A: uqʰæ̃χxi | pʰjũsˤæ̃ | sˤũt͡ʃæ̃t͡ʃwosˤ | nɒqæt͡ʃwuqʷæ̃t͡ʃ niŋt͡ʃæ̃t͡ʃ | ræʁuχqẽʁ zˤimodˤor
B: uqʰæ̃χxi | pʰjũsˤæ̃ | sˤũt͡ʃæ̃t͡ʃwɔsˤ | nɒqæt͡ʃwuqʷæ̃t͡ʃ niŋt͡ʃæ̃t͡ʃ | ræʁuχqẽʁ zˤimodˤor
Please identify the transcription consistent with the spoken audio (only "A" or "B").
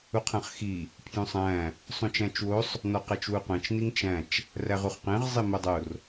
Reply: A